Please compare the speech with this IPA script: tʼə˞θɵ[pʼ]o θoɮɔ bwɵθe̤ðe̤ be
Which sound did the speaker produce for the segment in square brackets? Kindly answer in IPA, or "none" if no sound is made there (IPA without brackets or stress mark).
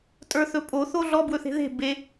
pʼ